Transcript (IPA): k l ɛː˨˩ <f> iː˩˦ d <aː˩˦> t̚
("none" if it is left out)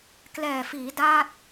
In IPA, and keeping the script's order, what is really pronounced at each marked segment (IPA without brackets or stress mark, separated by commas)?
f, aː˥˩